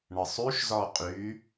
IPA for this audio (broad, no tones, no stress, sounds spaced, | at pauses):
ɳ ə sˤ y ʃ z ɔ qʼ y